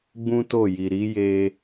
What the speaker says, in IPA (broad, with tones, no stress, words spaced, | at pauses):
ɡ͡bũ˦to˦˨ji˨ ɾi˨˦je˧